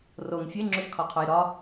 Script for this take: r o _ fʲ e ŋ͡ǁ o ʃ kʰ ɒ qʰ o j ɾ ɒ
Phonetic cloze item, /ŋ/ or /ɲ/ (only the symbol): ŋ